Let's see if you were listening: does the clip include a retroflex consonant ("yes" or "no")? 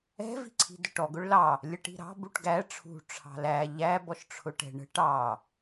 yes